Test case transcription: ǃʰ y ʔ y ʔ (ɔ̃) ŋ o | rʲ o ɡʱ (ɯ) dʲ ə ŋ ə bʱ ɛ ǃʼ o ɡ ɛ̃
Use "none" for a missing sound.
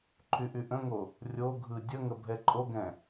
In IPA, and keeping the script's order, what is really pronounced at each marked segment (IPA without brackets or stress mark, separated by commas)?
ə̃, ɯ